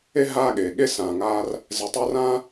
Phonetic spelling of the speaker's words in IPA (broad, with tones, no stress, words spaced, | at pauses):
e˦ ɦaː˦ɠeː˩ɠe˥ sãː˨ŋaː˥r | zɛ˨tˤʌː˦rãː˥